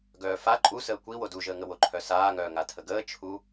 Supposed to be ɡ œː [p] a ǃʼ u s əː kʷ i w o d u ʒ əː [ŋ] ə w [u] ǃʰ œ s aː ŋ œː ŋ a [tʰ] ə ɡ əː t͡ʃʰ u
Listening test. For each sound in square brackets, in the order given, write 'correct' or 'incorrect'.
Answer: incorrect: f, correct, incorrect: o, correct

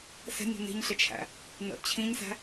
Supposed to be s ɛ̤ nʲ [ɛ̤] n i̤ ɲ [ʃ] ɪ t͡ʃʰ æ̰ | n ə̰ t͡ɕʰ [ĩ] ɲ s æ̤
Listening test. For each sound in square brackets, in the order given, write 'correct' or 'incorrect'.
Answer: correct, incorrect: ɬ, correct

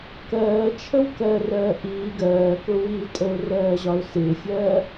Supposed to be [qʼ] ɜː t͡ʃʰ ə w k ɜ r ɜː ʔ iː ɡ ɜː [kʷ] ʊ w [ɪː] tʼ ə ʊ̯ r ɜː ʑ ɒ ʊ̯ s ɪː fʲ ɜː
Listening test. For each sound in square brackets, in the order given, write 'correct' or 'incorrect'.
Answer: incorrect: k, incorrect: k, incorrect: iː

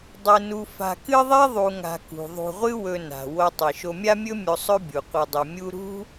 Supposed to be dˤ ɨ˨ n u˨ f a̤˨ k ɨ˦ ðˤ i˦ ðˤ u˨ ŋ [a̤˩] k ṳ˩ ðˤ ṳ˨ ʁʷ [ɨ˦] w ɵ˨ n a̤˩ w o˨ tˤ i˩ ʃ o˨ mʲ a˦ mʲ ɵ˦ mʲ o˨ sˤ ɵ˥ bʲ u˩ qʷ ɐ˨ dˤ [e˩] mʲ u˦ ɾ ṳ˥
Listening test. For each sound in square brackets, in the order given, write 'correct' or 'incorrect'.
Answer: incorrect: a̤˨, correct, incorrect: ɨ˩

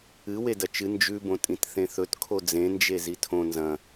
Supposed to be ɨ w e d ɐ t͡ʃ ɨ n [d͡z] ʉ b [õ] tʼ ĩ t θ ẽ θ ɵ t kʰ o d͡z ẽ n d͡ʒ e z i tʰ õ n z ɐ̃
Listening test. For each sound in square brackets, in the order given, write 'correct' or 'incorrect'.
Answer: incorrect: d͡ʒ, correct

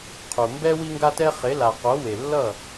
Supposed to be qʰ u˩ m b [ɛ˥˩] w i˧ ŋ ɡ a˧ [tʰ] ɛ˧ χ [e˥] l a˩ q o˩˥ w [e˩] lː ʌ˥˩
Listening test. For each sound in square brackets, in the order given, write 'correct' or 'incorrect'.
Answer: incorrect: ɛ˥, incorrect: t, incorrect: e˩˥, correct

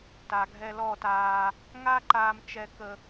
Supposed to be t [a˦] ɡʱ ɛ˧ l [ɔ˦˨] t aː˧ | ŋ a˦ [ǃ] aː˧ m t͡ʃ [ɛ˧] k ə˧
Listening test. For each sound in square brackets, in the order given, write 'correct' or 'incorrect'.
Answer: incorrect: a˨, correct, correct, correct

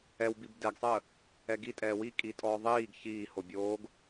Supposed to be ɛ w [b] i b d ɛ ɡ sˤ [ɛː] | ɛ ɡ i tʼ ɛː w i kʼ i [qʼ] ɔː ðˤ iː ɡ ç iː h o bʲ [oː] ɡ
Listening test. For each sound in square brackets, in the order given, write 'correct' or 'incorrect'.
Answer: correct, incorrect: əː, incorrect: tʼ, correct

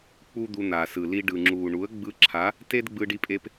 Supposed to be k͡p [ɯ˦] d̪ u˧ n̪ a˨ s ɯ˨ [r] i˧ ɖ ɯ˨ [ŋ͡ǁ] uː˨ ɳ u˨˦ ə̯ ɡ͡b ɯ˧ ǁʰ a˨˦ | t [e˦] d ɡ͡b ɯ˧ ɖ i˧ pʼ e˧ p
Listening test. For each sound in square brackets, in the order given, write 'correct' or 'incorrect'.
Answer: incorrect: u˦, incorrect: l, correct, correct

